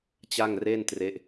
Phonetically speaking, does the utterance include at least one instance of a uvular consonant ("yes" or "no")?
no